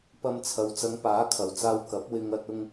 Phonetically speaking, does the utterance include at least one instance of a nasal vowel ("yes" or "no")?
no